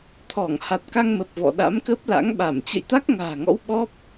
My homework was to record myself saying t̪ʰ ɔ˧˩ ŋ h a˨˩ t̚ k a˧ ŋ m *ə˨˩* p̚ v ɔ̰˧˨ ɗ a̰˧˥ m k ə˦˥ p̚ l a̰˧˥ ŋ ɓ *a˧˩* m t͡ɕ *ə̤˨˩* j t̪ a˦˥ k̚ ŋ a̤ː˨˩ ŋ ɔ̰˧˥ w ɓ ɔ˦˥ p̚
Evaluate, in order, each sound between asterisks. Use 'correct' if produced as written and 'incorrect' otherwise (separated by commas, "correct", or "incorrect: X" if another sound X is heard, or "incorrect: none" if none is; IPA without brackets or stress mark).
correct, correct, incorrect: ə̰˧˨